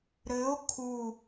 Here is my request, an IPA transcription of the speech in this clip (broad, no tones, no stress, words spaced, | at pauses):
ɾɘo̯ kʰu